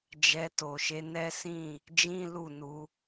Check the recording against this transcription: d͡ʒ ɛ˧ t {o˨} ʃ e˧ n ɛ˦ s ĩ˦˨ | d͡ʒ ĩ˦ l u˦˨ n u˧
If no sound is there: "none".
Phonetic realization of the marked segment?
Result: o˨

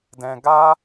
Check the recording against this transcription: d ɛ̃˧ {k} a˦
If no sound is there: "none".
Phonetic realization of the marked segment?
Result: ɡ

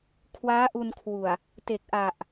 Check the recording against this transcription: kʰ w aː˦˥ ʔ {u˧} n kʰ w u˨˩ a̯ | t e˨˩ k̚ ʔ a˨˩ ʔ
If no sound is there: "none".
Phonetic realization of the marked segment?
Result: u˧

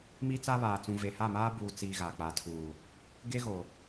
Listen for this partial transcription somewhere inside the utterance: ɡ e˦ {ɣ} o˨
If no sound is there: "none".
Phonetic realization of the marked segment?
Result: ɣ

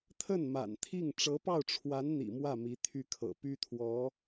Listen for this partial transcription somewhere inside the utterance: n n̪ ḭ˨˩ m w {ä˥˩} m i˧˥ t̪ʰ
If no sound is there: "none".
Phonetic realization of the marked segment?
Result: ä˥˩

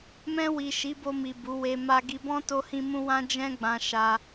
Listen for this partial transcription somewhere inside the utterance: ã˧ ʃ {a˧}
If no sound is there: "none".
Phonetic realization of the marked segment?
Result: a˧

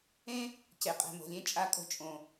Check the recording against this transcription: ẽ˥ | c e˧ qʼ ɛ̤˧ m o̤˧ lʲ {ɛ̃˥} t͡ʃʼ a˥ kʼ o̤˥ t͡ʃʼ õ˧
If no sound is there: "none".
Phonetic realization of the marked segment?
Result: ẽ˥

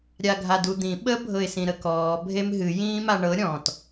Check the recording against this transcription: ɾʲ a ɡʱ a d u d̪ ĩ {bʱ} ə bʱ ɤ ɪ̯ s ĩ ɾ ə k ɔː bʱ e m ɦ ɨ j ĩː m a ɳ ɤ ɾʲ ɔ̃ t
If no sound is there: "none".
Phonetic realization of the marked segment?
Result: ɓ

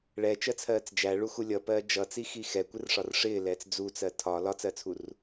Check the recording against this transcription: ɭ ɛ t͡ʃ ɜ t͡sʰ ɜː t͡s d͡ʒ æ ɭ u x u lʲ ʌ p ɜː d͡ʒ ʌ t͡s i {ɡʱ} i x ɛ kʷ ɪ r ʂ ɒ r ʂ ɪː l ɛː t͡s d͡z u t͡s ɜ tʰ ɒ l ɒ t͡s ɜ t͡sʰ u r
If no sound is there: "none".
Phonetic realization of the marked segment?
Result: x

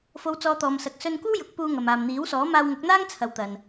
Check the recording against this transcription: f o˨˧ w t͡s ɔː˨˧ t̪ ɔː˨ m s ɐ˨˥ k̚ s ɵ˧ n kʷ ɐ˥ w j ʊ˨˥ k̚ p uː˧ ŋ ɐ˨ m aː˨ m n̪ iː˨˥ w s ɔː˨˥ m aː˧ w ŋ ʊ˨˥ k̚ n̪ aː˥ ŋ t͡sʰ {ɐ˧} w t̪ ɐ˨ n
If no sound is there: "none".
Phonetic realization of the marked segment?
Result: ɐ˨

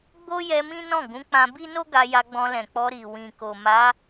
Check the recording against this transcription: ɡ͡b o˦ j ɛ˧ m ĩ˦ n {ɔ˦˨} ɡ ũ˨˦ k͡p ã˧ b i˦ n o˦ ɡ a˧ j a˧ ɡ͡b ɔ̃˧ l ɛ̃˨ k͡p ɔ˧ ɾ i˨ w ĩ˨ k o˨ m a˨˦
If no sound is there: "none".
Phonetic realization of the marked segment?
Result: ɔ̃˦˨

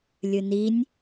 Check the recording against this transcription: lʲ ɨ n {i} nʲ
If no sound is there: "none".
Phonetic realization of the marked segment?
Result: i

